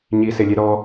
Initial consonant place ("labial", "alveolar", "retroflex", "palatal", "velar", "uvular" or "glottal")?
palatal